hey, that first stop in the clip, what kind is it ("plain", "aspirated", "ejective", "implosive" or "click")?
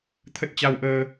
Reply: aspirated